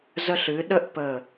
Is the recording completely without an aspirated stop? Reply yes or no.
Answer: yes